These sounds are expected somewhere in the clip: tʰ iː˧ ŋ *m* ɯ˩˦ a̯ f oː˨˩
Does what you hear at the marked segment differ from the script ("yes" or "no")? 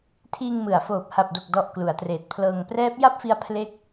no